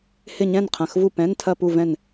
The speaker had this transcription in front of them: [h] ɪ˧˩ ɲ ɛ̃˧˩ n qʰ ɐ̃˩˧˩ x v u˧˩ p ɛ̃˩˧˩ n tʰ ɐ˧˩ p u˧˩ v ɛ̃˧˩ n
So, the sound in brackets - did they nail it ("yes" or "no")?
yes